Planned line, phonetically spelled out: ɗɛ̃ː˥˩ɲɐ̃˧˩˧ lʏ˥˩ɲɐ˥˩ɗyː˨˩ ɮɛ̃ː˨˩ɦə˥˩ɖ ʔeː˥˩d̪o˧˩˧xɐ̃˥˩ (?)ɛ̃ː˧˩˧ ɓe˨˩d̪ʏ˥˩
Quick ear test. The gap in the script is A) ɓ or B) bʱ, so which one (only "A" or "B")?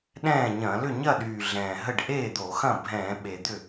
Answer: B